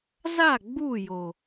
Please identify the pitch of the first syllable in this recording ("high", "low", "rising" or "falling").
falling